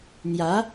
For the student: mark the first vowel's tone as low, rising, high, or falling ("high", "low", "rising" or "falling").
rising